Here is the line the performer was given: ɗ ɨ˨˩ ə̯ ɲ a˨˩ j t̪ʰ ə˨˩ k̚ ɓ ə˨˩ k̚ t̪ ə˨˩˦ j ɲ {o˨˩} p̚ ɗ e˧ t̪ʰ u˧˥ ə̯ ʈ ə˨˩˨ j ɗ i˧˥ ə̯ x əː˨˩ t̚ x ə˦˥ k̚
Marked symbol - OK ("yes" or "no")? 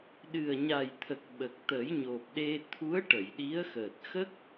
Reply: yes